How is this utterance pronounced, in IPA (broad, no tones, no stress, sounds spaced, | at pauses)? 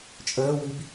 t͡ʃʼ əː w i b